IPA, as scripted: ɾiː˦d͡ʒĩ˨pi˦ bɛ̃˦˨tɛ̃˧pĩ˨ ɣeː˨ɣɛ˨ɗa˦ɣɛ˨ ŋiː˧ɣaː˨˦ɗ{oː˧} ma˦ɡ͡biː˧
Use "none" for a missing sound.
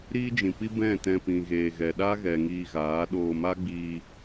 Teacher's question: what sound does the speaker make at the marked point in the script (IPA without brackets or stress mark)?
oː˧